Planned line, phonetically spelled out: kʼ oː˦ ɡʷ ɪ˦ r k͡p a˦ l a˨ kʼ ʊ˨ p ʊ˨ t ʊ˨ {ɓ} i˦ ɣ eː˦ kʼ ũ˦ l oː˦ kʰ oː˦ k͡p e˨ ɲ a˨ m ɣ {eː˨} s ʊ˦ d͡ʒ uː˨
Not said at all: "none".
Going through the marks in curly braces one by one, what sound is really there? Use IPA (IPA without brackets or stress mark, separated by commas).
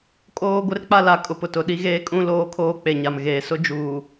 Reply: ɗ, eː˨